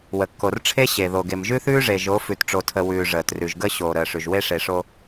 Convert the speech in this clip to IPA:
w ə˨ kː o˨ r ʈ͡ʂʰ e˦ ɕ e˨ ð o˨ ɡ e˨ m ʒ ʉ˦ θ ʉː˦ ʐ e˨ ʒ o˨˦ f ʉ˨ t ʈ͡ʂ o˨ tʰ ə˨ w ʉː˨ ʐ əː˨ t r ʉ˨ ʒ ɡ ə˦ ɕ oː˨ ɾ əː˨ ʂ ʉ˨ ʒ w e˦ ʂ e˨ ʂ o˦

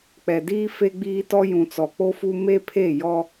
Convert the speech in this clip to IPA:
k͡p ɛ˨ d iː˦ f e˦ ɡ͡b iː˦ t ɔ˦ j ũ˨ t͡s ɔ˨ k͡p o˦ f u˦ m e˦ pʰ e˦˨ j ɔ˦

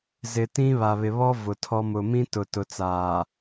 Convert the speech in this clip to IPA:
z ɪ˨ t ĩ˦ β a˨ β ɪ˨ β ɔ˦ v ʊ˨ tʰ ɔ˦ m ʊ˨ m ĩ˦ t ʊ˨ t ʊ˨ t͡s aː˨

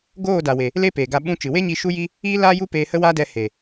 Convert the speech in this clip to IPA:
ɡ oː˦˨ d a˨ w e˨ | l e˦ p eː˨ ɡ a˧ ɓ ũ˧ t͡ʃ ɨ˨ w e˦ ɲ i˧ ʃ u˦ j i˦ | iː˦ l aː˦ j u˦ p eː˧ h ə˦ w aː˦ d ɛ˧ h e˨

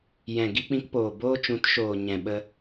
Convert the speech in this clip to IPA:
j ɛ̃˨ ɡ i˧ k͡p ĩ˧ k p oː˨ b oː˧ t͡ʃ ũ˨˦ t ʃ oː˨ ɲ ɛ̃˨ ɓ ə˧

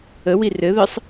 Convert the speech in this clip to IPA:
ə w i r ɘ ð ɘ sˤ

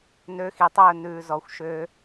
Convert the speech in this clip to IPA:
n ø˧ x i˨ tˤ ɵː˦˨ n ʉː˨ z ɔ˨ xʷ ʃ ø˧

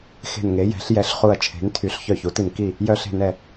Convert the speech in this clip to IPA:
x e̤˨˩ n ŋ e˩˧ j ɛ̤˩˧ ɬ j ɛ˩˧ ɬ χ u˨˩ ɐ̯ t͡ʃʰ e̤˩˧ n tʰ y˩˧ ɬ ç œ˨˩ ç u˩˧ t i˨˩ n k i˨˩ | j œ˨˩ ɬ e̤˨˩ n ɛ˨˩

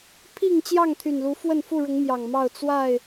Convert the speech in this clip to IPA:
pʰ i˥˨ ŋ t͡ɕ j ɑ˥˨ ŋ t̪ʰ y˨˩ n l u˨˦ f w ə˥˨ n f u˥˨ ɻ ʊ˨˦ ŋ m j ɑ˨˩ ŋ m ɑ˥˨ ʊ̯ t͡s w a˥˨ ɪ̯

